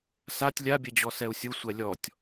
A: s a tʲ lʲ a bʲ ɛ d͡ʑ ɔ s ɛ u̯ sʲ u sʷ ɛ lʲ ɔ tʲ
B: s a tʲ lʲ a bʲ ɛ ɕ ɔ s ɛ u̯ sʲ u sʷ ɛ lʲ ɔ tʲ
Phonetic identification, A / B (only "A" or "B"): A